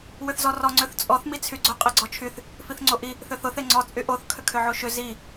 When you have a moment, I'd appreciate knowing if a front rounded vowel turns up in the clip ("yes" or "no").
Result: yes